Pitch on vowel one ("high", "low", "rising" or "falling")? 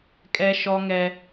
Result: high